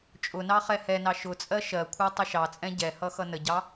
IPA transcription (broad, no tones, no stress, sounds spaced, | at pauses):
t͡ʃʼ ʊ n ɑ χ ɛ h ɛ n ɑ ʃ ʊ t͡sʼ ɜ ʃ ɜ kʷʰ ɜ tˤ ʊ ʃ ɑ t͡sʼ ɛ̃ ɟ ɛ h ʌ x ʌ n ə ɟ ɑ